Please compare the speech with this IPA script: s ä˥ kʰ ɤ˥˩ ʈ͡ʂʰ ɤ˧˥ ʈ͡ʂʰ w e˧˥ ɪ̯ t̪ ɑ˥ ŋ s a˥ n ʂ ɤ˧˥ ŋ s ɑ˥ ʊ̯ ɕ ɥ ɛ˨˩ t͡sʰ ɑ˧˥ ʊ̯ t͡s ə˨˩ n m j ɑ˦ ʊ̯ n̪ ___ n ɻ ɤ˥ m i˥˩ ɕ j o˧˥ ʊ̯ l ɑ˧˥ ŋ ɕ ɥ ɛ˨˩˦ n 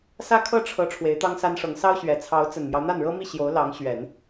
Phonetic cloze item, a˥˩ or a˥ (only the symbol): a˥˩